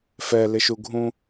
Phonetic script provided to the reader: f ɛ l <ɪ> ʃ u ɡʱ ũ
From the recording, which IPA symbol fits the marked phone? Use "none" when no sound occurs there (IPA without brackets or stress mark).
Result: ɪ